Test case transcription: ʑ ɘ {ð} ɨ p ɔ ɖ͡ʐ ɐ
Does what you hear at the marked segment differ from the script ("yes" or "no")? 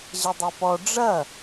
yes